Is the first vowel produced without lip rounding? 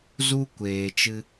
no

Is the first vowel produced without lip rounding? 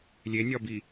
yes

